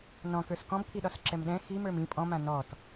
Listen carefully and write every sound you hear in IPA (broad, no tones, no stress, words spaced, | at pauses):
nɔ̃kə˞s kɔ̃bkʰiɗɒsǁɛm ɗɛ̃ ximə˞m ĩ pʼɔ̃mã nɔt